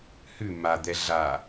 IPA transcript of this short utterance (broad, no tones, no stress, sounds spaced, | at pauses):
h ʉ m a d̪ ɛ ɮ a